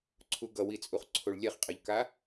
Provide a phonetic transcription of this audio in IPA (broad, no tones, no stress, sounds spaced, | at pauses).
ǀʰ u ɡ ʌ w i t͡sʼ u χ ǀʰ o ɭ lʲ ɛ χ qʼ a ʎ k a